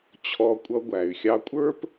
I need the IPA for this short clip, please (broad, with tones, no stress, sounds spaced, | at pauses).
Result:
t͡ɕʰ ɔ˧ kʷʼ ʌ˧ ɡʷ æ˩ y̯ xʲ ɑ˧ kʷʼ ə˞˥ p